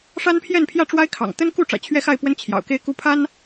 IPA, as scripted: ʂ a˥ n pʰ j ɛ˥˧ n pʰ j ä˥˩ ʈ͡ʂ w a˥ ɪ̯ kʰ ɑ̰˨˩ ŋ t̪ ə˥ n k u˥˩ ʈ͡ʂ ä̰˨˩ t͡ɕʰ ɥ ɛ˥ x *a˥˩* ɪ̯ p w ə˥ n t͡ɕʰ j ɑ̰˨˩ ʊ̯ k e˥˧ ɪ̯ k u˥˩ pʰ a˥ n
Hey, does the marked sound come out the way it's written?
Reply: yes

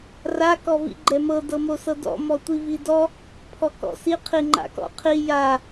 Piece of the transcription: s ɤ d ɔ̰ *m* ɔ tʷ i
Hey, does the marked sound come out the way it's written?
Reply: yes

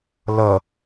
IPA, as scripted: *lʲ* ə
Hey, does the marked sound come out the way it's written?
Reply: no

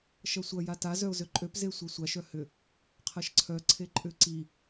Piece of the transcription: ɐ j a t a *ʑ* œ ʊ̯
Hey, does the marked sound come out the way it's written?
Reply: no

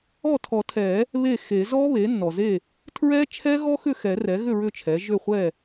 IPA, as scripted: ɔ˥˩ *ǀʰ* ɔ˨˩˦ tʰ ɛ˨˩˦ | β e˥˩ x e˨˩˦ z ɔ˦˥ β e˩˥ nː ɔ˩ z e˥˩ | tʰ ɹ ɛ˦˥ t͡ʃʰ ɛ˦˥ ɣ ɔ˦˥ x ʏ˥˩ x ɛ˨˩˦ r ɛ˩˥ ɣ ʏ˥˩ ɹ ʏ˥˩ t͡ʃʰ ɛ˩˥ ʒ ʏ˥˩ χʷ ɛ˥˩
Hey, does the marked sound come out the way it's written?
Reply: no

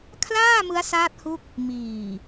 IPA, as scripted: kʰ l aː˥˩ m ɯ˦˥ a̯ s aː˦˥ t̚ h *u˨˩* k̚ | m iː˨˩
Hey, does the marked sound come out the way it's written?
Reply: no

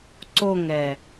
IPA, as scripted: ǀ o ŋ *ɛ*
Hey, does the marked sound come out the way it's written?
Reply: yes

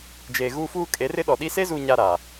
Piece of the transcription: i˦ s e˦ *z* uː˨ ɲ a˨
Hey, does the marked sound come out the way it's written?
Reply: yes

